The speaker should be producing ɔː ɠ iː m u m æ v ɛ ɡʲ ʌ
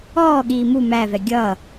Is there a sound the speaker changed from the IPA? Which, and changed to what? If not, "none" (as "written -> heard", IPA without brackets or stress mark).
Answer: none